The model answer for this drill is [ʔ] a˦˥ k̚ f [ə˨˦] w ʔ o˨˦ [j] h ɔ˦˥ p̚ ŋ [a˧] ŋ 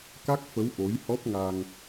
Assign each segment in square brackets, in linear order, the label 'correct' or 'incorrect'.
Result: incorrect, correct, correct, incorrect

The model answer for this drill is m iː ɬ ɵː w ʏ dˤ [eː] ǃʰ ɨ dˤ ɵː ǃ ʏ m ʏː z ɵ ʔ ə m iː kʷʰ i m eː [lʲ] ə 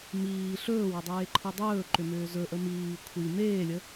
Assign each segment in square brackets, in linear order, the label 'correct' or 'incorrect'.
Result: correct, correct

